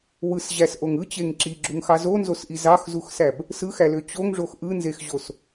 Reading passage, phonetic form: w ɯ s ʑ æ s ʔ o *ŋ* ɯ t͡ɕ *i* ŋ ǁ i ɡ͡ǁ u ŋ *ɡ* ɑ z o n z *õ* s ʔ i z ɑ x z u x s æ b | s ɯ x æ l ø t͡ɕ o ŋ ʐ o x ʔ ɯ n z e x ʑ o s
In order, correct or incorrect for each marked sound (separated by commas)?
correct, incorrect, incorrect, incorrect